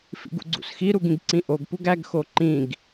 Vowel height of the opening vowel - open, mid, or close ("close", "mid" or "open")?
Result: close